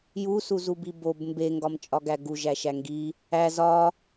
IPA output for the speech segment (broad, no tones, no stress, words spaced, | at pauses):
jusuzubi bob mbeŋɡɒm t͡ʃʼɒɡæɡu ʒæʃæŋɡi | æ zɒ